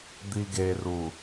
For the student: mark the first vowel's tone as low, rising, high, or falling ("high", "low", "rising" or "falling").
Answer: low